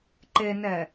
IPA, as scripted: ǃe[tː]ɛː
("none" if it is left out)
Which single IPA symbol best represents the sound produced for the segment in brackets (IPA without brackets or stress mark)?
n